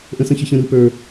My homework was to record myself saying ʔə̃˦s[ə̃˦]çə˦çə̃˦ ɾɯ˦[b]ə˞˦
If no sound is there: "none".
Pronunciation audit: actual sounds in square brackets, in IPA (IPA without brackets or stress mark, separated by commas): ə̃˦, p